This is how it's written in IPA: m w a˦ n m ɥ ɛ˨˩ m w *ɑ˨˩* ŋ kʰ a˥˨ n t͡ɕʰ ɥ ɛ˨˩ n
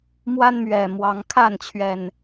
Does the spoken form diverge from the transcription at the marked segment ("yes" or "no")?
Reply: yes